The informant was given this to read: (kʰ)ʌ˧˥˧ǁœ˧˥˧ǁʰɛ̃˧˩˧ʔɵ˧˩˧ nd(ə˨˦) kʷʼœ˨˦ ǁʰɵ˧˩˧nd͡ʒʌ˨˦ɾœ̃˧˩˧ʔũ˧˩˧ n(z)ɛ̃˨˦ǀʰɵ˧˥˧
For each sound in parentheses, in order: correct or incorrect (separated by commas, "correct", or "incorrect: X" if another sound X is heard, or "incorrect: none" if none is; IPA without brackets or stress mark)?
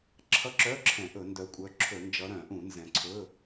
incorrect: ǁʰ, incorrect: œ˨˦, correct